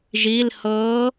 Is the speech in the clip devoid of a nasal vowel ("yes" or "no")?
yes